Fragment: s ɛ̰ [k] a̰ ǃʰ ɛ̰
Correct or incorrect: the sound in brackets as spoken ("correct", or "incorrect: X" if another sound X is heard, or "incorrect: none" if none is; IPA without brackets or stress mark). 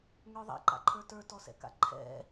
correct